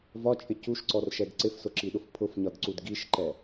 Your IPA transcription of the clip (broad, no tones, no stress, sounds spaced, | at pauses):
v ɒ t͡ʃʼ ɪ c u ʃ ǀ ɔ r ʃ ɛ d ǀ ɪ f s ʊ ǁ i ɗ ʊ f pʰ ʊ f ɲ ɒ d ǀ u d ɡ i ʃ ǃ ɛ